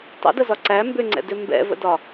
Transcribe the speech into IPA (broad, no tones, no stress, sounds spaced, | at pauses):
tˤ ə̰ d ə z ɒ ǀ æ m b ʏ ŋ͡ǀ ɛ̰ d ʏ m b ɛ̰ v ə̰ d ɒ